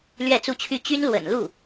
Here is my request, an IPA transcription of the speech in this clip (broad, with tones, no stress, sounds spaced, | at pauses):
l ɥ ɛ˥˧ t͡s u˥˧ t͡ɕʰ y˥˩ t͡ɕ y˥ n l w ə̰˨˩ n l u˥˩